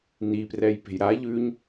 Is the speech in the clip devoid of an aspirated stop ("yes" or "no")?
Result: yes